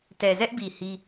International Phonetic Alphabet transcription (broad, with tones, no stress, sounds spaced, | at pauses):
t ɛ˨ z ɛ˦ ʔ b i˨ h i˦